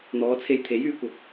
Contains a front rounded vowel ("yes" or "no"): yes